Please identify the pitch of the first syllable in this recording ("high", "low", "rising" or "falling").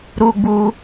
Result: high